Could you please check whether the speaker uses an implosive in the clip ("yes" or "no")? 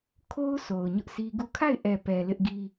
no